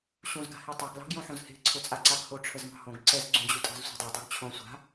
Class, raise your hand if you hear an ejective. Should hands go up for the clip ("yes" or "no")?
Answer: yes